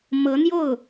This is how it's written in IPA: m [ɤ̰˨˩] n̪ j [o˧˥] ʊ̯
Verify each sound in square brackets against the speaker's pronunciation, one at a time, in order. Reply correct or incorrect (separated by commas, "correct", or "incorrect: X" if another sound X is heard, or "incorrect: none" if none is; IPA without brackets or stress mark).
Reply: incorrect: ɤ˧˥, incorrect: o˥˩